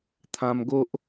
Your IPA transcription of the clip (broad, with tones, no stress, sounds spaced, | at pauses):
t̪ʰ ã˧ m ɡ o˦ ʔ